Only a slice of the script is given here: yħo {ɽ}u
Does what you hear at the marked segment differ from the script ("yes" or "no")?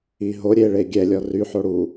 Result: no